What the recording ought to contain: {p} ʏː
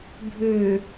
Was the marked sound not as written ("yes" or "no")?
yes